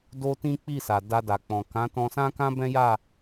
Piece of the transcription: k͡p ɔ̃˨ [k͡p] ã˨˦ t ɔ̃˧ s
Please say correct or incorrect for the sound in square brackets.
incorrect